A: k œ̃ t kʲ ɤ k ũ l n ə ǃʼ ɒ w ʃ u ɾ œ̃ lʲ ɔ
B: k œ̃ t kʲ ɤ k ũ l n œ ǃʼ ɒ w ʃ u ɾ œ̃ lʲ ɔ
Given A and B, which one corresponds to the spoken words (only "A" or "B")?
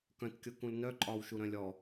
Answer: B